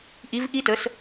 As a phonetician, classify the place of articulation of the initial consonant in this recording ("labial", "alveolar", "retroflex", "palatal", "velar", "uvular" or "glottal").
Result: glottal